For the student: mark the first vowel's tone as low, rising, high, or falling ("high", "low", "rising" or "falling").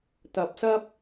rising